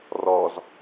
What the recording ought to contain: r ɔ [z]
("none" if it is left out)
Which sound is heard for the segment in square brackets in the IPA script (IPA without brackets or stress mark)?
z